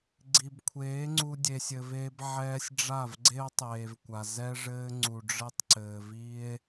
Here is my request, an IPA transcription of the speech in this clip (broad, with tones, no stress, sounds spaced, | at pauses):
ɡ͡ǀ i˨ b kʷʰ eː˨˦ ŋ͡ǀ u˧ dʲ e˨ sʲ ɘ˨ v eː˧ b ʕ ɛː˧ sʲ ɖ͡ʐ a˦˨ v ɡ͡ǀ e˦ o̯ tˤ eː˨ v kʷ a˨ z ɛ˦ ʐ ɘː˦ ŋ͡ǀ u˨ ɖ͡ʐ ɘ˦ tˤ ǀ ɘː˨ v i˦ e̯